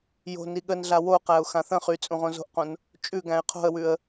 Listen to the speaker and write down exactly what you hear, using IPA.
j o̤ n i ɠ ə n ɮ a w o q æ ʊ̯ x ã θ ə̃ χ y t͡sʼ ũ ʁ õ z o̤ ʔ q õ n | t͡ʃʼ ʉ ɡ æ̃ ɪ̯ qʰ o̤ ə̯ w ʉ ə̯

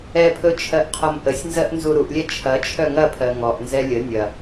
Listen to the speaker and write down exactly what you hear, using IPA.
ɛ pʰ ɵ t͡ʃʰ ɜ ʔ qʰ ɔ m ʔ ə sʲ n z ɜ ʔ n z u ɾ u ʔ lʲ ɛ t͡ʃʰ ɐ t͡ʃʰ œ ŋ ɐ pʰ ɜ ŋ ɔ ʔ n z ɛ lʲ ə nʲ ɐ

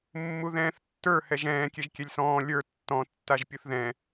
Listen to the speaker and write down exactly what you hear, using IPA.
mː u ð ɛ̃ː θ tː ə˞ h ɛ ʒ ɛ̃ː kʲ ɛ ʒ kʲ ɛ lʲ s ɔ̃ː lʲ ə˞ tː ɔ̃ tː a ʒ pʲ u θ ð ɛ̃

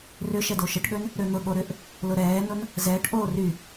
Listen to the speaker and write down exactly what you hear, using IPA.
r ʏ ʃ ɛ d o ʃ ə ʈ ɠ ø n | ɾ ø n̪ ʊ ɠ o ɾ ʏ ʔ | l ʊ ɾ ɛː n ʊ n | z ɛː ʈ ʔ oː r y

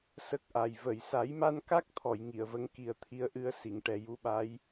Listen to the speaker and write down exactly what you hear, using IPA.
s ə˦˥ k̚ ʔ a˨˩ j v ə˨˩˨ j s a˨˩˦ j m a˧ n k a˦˥ k̚ t̪ʰ ɔ˨˩˨ j ŋ i˨˩˨ ə̯ v ə˧˥ ŋ k i˨˩ ə̯ t̪ʰ i˧˥ ə̯ ʔ ɨ˧ ə̯ s i˨˩˨ ŋ ʈ ɛ˨˩ j u˧˥ ɓ a˧˥ j

